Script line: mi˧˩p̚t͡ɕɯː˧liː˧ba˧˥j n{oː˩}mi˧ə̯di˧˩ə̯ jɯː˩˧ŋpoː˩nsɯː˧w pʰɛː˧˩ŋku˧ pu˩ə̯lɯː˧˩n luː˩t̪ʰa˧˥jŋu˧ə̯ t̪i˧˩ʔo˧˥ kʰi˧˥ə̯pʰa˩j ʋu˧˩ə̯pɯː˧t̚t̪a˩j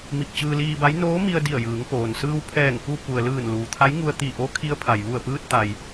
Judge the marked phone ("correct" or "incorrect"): incorrect